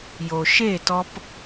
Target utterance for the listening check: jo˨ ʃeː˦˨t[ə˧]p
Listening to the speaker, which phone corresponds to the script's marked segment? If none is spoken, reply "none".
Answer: ɔ˧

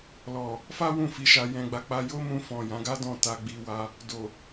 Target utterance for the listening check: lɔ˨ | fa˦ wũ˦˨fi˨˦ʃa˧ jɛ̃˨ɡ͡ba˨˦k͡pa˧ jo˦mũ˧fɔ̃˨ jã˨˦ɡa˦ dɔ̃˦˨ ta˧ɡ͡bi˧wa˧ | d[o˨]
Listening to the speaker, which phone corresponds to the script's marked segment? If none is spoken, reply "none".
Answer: o˨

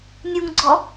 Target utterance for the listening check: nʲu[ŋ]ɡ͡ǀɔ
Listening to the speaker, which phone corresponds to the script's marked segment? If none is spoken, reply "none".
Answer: ŋ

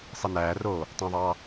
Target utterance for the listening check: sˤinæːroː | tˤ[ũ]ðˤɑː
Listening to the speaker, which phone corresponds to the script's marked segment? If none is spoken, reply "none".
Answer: ũ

